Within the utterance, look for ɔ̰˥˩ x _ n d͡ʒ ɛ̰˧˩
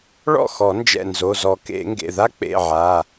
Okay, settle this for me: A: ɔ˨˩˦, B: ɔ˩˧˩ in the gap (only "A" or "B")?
A